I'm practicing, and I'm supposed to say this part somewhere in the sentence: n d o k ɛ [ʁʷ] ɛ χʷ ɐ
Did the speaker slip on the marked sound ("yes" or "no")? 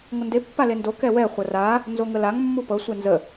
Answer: yes